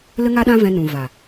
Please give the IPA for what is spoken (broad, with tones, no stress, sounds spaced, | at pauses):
l ə˦ ŋ a˦ ɗ ã˦ v ɛ̃˧ n ũ˨ v a˨